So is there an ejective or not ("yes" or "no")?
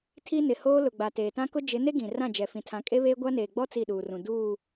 yes